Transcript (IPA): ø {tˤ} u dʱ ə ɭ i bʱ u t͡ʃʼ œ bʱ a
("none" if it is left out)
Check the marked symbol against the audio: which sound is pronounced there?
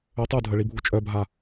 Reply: tˤ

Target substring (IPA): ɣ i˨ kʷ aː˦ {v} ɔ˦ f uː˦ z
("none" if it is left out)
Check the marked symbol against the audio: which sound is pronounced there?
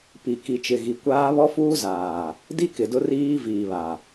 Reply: β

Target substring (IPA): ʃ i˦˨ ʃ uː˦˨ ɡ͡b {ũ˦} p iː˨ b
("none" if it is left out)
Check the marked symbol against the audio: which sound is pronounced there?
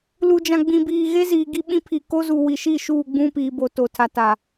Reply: ũ˦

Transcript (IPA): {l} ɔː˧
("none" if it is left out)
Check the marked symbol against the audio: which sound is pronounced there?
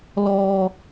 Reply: l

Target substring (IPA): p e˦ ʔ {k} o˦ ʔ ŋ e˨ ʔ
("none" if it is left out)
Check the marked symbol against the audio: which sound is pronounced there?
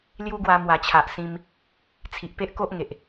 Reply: k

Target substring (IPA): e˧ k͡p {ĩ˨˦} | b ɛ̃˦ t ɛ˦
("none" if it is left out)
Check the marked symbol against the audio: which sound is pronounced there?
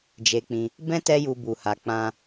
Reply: ĩ˧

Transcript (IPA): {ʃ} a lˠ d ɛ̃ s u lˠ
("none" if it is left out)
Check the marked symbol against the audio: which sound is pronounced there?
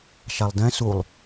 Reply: ʃ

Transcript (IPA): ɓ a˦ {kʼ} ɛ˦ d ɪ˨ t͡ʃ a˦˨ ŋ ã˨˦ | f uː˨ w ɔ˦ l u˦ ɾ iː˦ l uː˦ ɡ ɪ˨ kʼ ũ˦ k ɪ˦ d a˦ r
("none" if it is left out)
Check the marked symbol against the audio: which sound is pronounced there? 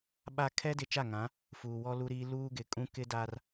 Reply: kʰ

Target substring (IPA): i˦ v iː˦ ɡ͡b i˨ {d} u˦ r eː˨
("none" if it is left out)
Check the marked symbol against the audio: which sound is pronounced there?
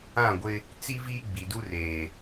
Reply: d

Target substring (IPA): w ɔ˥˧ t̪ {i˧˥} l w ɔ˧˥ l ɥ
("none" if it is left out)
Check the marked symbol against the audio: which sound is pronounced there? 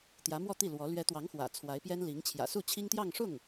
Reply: i˥˩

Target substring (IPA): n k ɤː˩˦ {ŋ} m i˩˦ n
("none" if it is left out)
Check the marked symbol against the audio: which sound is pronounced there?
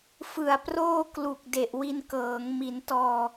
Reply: ŋ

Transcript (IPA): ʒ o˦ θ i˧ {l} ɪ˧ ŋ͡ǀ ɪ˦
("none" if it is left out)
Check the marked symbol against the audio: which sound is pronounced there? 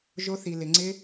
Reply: l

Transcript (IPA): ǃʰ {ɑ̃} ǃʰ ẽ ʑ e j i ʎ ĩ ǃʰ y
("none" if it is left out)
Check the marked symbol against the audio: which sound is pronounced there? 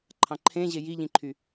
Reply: ɑ̃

